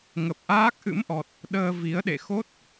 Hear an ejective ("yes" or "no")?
no